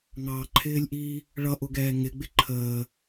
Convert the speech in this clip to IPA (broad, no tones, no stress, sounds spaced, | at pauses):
ŋ ɑ ǃʰ ɪː lʲ ʔ iː | ɭ ʌ ʔ ʊ ɡ ɛː ŋ ɪ ɡ͡b ɪ ǃʰ əː